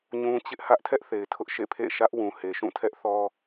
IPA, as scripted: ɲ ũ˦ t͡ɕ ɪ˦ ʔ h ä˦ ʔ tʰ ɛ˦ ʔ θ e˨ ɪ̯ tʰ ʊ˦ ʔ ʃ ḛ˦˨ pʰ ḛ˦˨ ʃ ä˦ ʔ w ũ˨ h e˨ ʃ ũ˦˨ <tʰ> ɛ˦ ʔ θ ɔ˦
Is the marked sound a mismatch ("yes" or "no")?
no